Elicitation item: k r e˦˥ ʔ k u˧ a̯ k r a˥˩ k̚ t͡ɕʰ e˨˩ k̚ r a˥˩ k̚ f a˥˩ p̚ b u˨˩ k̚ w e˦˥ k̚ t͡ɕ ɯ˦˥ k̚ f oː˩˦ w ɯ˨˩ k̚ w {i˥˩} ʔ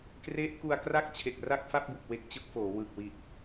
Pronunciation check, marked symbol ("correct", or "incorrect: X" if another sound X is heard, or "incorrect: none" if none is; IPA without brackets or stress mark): incorrect: i˨˩